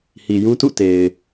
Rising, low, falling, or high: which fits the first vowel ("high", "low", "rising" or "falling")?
low